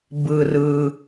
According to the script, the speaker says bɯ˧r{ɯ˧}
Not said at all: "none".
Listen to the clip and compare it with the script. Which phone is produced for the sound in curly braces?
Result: ɯ˧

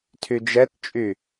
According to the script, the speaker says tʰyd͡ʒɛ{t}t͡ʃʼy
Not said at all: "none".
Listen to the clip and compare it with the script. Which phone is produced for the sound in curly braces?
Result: t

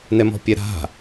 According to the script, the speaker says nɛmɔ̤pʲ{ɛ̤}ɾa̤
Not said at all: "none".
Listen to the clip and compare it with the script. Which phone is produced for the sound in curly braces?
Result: ɛ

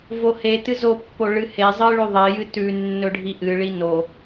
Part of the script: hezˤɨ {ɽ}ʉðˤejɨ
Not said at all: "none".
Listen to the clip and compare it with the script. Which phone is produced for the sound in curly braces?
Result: ɭ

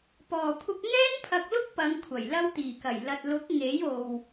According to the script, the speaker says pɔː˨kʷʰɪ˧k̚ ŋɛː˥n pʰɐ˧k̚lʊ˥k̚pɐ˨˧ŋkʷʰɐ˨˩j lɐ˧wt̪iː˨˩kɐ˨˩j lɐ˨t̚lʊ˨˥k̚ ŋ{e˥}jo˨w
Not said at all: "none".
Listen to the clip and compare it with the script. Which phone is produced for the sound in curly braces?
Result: e˨˥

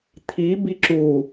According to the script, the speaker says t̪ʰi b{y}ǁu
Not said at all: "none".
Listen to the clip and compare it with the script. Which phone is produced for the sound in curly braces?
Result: i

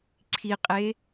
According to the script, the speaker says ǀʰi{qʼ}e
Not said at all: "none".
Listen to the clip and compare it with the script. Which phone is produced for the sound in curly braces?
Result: qʼ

